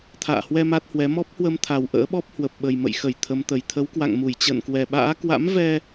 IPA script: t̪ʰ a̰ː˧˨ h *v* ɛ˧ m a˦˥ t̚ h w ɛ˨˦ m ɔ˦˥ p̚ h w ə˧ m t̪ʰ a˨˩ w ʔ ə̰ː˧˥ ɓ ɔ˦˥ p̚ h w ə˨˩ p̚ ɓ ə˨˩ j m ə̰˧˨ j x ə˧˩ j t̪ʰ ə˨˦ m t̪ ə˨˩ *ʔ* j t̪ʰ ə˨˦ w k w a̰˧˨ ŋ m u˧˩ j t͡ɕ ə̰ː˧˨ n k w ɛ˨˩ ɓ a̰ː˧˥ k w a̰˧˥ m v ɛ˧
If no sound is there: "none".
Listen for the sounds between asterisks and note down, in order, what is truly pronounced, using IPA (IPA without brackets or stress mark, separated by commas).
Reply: w, none